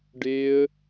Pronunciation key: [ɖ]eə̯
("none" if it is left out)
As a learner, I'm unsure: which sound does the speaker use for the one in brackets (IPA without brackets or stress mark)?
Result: ɖ